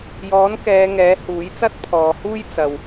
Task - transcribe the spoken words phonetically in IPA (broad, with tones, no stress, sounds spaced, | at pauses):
j ɔː˨˥ n k ɛː˨˧ ŋ ɛː˨˥ h uː˨˥ j t͡s ɐ˥ t̚ pʰ ɔː˨˧ h uː˥ j t͡s ɐ˨ w